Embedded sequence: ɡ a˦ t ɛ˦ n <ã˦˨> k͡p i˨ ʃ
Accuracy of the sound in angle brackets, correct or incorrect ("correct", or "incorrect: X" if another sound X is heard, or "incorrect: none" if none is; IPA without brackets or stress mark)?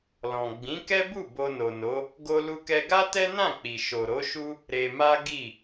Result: correct